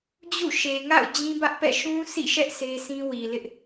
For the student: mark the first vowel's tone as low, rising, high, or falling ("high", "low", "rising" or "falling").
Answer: falling